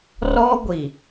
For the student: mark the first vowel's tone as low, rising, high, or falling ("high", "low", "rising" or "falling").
high